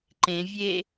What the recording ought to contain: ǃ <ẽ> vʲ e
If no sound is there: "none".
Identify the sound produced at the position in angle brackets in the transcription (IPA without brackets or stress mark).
ẽ